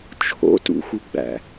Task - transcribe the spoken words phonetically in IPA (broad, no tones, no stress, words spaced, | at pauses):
t͡ʃʰo̰tṵxuɡ͡bæ̰